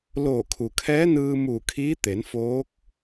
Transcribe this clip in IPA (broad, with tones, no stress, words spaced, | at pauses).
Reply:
loː˧˩kʰu˩ kʰɛː˧˥nɯː˧ muː˧˩kʰiː˧˥t̪e˩˧nfoː˧˥k̚